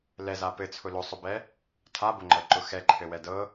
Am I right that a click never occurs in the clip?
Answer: no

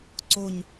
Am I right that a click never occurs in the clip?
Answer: no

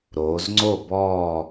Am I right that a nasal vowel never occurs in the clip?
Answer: yes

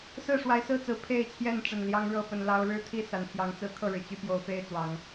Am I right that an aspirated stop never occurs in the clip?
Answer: no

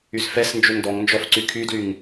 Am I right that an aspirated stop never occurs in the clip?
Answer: no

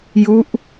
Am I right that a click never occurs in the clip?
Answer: yes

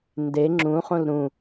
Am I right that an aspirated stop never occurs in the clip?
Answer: yes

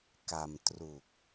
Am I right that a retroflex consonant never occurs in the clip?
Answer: yes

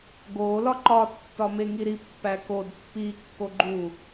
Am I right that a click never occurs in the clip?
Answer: no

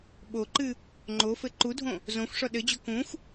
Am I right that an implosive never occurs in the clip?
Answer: no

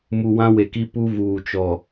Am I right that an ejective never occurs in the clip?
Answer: yes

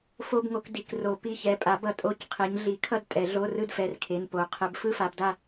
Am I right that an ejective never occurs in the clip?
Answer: no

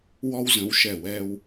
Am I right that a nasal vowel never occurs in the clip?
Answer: no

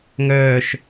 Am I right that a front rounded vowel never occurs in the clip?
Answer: no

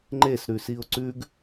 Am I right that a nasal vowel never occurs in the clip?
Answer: yes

